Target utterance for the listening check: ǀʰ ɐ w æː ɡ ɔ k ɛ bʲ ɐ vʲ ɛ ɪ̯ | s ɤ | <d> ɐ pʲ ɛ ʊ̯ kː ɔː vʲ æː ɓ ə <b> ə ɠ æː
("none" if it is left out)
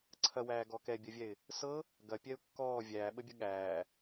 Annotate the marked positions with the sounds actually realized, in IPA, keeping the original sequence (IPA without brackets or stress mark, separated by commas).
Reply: ɡ, bʲ